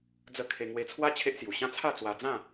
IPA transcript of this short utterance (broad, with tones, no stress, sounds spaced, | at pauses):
d͡z ə˥˧ kʰ e˧ ŋ w e˧ t͡sʰ w a˦ t͡ɕʰ e˦ ʔ s j u˨˩ ɕ ã˥˧ t͡sʰ a˥˧ t͡s w a˧ d͡z ã˥˧